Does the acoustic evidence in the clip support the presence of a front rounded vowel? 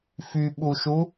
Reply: yes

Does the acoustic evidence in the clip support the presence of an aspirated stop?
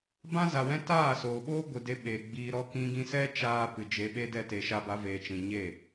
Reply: no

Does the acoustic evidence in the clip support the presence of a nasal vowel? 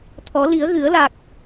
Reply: no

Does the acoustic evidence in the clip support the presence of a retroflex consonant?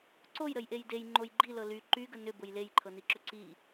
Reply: no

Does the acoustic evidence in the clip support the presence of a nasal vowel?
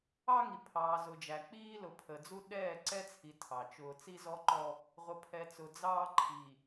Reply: no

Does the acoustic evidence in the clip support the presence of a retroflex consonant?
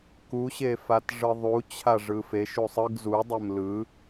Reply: yes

